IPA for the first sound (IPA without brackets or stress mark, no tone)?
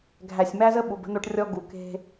ɡʱ